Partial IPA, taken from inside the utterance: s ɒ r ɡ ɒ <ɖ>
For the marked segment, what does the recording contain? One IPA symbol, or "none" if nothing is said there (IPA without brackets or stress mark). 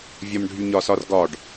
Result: ɖ